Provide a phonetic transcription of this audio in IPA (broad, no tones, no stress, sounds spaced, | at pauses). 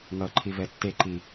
ŋ ʌ ǃʰ i v ɛ tː e ǃ i